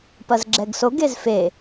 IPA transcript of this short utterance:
p ɐ z ɡ͡ǁ ɛ ɡ s o ɡ e z f e

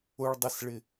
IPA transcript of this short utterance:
ʊ ɭ dˤ ɪ s ɭ ɪ

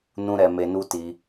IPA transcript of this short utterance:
n ũ˦ ɾ ɛ˧ m e˧ n u˦ t i˧

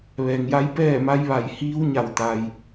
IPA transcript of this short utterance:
ʋ ɛː˩ ŋ j a˧˥ j p ɛː˥˨ m a˧˥ j ʋ a˧˩ j h iː˧˥ w ɲ a˧˩ w t̪ a˩ j

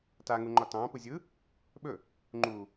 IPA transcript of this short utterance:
t a ŋ u ŋ͡ǃ ɒ t ɑ̃ː p ɯ zʲ ɯ | ɓ ɵ | ŋ͡ǃ u

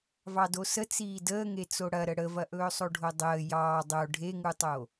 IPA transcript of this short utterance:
v ɑ d o s ə t͡s iː d əː ŋ e t͡s o ɽ ɐ ɾ ə ɽ ə v ɐ ʔ ɵː sˤ o ɖʱ o dˤ əː j ɑː dˤ o ɖʱ e ŋ u tˤ o

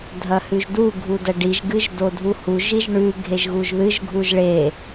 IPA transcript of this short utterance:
dʱ ɐ h ʉ ʒ d u ɡʱ u d ɐ ɖ i ʒ ɡ ɨ ʒ d o dʱ u h u ʒ i ʒ ɳ ʉ ɡʱ e ʒ ɣ u ʒ ð ɨ ʒ ɡʱ u ʒ ɭ e

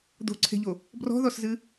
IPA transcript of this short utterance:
d̪ o̤ ǀʰ e̤ ʎ o | b r ɔ̤ ð ɔ s z ɨ

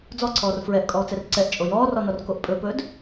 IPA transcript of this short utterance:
d͡z ɔ ǀʰ ɔː r f ɹ ɛ ʔ kʼ ɔː t͡s ɛ r ǀ ɛ ʔ t͡ʃʼ o j ɔː r ɔ n ɔ r k o ʔ pʼ ɵ p ɵː d

